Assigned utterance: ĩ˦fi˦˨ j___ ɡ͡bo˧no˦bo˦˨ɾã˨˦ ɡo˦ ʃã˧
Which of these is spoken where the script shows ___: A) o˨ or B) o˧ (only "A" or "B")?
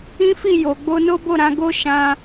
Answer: A